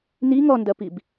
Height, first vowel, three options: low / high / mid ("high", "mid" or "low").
high